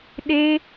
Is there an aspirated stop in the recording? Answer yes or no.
no